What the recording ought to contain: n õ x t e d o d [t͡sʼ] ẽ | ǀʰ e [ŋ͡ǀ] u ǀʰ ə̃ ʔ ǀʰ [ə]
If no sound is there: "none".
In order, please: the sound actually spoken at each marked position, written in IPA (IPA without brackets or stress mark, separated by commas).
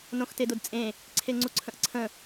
t͡sʼ, ŋ͡ǀ, ə̃